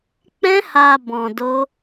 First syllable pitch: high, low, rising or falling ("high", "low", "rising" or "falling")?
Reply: high